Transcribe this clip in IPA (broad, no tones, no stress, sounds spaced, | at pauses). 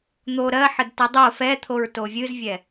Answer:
n̪ o ɾ ɜ ħ ə d t ɛ dˤ o f ɛ t̪ʰ o ɹ t o vʲ ɨ z vʲ ɛ